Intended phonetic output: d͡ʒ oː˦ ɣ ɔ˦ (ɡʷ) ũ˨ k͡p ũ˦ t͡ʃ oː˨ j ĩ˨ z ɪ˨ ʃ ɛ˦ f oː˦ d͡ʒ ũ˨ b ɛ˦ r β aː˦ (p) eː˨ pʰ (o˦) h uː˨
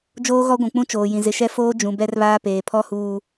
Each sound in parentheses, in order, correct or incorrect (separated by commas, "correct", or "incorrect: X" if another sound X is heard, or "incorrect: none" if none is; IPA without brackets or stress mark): correct, correct, incorrect: ɔ˦